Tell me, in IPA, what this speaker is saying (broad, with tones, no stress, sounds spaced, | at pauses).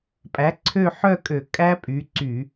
pʼ æ˩˥ ǀʰ ø˥˨ ħ œ˥˨ kʼ ø˧˩˧ kʼ æ˦˥ pʼ y˩˥ ǀ y˧˩˧